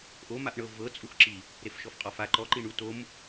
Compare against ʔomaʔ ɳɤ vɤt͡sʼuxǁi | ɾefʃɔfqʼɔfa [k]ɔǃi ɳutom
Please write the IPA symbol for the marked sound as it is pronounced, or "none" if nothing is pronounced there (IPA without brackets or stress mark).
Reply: ǃ